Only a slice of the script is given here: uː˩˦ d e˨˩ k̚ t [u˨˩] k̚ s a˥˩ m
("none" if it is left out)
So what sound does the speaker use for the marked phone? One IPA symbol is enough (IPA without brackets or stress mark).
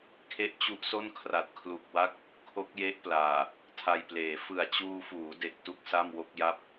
u˥˩